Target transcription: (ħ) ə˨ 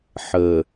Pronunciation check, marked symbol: correct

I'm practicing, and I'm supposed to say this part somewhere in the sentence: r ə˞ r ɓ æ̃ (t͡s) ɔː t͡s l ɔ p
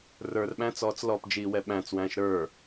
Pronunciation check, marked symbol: correct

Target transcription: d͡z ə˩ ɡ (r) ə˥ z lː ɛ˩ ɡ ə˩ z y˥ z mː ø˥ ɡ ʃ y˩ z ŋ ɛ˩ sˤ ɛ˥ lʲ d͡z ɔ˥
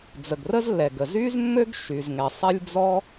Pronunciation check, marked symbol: correct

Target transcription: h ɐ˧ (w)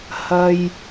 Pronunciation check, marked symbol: incorrect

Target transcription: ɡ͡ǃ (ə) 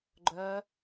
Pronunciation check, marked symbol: incorrect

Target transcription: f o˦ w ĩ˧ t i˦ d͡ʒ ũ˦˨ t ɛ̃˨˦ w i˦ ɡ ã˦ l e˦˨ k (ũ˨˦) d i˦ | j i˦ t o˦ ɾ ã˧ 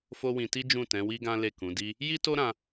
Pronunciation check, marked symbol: correct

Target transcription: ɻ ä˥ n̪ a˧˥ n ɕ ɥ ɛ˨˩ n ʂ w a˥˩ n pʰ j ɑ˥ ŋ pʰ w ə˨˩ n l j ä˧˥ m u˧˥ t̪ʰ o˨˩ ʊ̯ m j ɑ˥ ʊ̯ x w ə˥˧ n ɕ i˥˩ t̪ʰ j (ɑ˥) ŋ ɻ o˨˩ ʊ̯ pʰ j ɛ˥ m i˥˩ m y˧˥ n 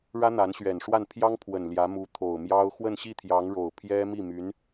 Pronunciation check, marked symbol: incorrect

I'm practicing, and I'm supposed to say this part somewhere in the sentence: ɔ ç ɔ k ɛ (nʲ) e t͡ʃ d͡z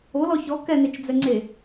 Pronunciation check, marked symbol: incorrect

